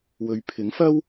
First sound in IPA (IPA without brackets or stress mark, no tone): w